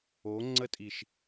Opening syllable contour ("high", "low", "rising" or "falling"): rising